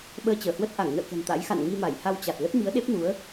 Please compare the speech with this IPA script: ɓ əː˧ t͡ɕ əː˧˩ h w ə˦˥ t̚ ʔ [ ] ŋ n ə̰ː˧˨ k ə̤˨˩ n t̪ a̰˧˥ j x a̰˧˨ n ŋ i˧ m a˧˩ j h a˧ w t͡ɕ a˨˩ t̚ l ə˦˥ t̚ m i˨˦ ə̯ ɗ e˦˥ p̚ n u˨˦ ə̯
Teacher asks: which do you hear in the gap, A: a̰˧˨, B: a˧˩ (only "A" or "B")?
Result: B